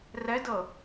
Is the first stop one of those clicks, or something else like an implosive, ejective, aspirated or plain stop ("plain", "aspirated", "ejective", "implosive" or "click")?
plain